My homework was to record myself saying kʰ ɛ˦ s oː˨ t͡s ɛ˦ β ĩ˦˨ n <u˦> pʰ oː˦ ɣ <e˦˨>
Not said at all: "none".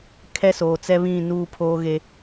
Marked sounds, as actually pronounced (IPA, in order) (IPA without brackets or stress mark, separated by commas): uː˦, e˦